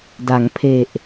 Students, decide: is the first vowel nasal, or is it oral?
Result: oral